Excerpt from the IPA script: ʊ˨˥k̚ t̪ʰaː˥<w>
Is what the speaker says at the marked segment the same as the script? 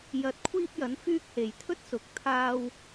yes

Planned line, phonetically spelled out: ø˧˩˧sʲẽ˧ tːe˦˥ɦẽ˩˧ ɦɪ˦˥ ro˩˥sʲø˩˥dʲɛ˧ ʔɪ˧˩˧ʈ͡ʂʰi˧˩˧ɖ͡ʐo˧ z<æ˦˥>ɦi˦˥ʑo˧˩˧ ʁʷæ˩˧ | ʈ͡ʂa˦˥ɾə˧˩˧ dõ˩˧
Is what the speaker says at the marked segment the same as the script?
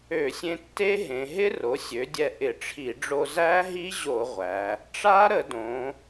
yes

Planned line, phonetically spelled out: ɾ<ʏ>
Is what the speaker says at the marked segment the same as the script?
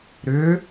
yes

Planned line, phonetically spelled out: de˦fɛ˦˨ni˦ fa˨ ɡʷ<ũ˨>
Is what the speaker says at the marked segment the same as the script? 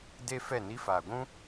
no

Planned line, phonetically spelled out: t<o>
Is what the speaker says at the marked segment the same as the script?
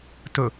no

